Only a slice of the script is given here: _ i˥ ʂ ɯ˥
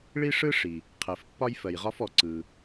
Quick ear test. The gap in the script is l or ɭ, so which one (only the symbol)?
ɭ